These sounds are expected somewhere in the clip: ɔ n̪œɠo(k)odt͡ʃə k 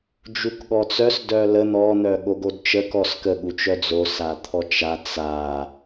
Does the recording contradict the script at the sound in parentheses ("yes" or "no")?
yes